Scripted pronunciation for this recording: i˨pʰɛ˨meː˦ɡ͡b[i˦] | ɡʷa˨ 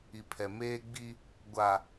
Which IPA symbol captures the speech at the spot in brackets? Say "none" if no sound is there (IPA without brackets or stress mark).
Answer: i˦